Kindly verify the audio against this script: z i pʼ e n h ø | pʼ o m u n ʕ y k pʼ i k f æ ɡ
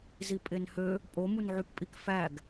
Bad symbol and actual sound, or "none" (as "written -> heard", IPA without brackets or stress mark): none